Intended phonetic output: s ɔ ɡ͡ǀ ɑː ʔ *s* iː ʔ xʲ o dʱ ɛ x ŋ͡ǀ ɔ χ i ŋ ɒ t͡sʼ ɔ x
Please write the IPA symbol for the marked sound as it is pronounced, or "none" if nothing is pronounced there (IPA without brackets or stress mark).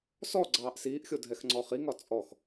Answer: s